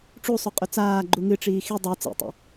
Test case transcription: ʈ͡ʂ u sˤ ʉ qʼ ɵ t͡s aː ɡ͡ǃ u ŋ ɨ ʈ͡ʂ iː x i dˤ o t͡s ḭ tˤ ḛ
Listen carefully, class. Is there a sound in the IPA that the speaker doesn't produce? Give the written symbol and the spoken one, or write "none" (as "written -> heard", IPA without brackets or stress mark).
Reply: none